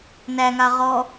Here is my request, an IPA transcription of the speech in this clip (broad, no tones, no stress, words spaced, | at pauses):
næŋa ʁɔ